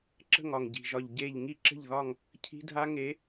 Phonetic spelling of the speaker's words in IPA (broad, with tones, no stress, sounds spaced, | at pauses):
ǁ ə̤˦˨ ŋ ɒ˨˩ ŋ ɟ i̤˨˩ ʒ ɒ˨˩ ʎ ɟ e˦˨ ʎ ŋ i˦˨ ǁ ə̤˦˨ ʎ ð ɒ˦˨ ŋ | cʰ i̤˦˥ dʱ a˦˥ ŋ e˨˥